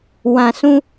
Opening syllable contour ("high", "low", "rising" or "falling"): low